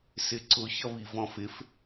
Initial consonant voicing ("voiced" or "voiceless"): voiceless